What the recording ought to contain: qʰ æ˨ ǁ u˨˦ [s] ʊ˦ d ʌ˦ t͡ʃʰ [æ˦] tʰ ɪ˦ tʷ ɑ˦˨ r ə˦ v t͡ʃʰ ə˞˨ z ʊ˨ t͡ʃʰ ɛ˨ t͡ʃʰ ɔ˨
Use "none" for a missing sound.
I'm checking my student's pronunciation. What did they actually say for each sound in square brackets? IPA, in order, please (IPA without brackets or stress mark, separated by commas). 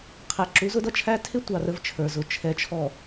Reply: z, æ˦